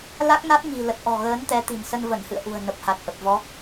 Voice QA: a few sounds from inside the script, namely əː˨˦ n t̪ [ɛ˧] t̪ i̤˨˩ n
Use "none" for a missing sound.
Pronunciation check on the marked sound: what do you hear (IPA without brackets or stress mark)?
ɛ˨˦